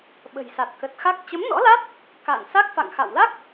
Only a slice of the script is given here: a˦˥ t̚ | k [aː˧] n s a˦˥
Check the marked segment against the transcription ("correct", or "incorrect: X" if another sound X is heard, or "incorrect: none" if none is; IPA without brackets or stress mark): incorrect: a̰ː˧˨